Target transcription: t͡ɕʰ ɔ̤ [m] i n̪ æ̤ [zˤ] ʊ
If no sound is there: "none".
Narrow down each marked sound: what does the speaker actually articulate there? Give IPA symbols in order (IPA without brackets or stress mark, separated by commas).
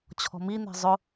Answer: m, zˤ